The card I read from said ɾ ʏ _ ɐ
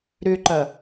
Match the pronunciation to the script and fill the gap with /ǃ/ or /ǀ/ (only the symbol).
ǃ